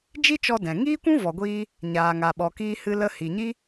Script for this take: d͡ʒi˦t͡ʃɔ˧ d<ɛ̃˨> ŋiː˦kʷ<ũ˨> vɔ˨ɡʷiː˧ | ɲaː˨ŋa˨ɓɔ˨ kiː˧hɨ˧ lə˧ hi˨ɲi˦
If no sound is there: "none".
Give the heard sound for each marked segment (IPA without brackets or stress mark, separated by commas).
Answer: ɛ̃˨, ũ˦